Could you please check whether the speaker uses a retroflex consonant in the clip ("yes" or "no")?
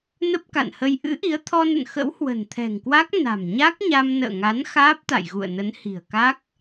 no